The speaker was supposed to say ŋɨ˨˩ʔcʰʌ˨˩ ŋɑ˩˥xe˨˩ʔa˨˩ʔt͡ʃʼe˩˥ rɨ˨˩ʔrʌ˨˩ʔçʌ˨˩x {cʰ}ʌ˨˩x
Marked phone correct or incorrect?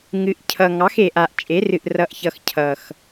correct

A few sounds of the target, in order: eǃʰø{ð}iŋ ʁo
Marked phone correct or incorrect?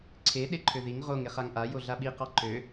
correct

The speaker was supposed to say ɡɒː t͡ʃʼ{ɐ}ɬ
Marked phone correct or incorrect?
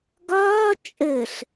incorrect: ə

